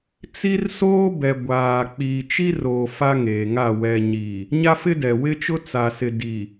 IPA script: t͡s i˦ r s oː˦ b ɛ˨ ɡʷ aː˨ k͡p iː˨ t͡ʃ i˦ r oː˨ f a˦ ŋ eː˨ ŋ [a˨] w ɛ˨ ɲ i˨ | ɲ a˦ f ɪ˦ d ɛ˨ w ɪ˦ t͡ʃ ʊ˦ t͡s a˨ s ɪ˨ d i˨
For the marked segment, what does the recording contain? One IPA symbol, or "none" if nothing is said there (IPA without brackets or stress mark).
a˦˨